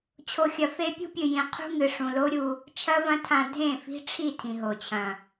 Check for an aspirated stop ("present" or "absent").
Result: present